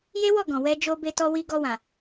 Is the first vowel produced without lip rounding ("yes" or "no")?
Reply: yes